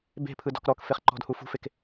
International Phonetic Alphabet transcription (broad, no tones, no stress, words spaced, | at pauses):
be̤pʰɯdɔ̤k ɾɔkfeχǃɔ̤dhu fṳfek